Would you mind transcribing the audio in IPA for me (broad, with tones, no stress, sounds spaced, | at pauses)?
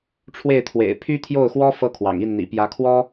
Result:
ʈ͡ʂʰ w e˥˩ ɪ̯ t̪ʰ w ḛ˨˩ ɪ̯ pʰ y˥ t̪ʰ j o˥˩ ʊ̯ x w ɔ˥ f ɤ˥ kʰ w ɑ̰˨˩ ŋ i˥˩ n n̪ ḭ˨˩ p j ä˧˥ kʰ w ɔ˥